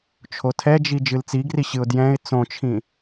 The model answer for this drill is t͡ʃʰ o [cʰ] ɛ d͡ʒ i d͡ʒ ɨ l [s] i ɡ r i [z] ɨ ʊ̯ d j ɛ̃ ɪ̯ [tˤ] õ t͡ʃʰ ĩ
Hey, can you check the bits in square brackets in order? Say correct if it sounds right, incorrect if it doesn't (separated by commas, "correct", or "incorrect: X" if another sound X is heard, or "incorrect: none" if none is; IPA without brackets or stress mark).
incorrect: tʰ, incorrect: t͡s, incorrect: ɕ, incorrect: t͡s